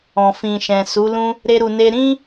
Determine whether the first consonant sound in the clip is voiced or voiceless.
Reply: voiceless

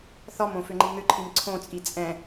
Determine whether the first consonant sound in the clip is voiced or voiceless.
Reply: voiceless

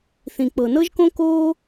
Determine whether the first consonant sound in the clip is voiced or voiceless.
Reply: voiceless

